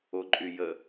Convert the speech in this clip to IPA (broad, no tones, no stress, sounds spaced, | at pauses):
o ǃʼ y j ə